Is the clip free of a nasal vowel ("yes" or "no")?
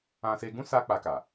no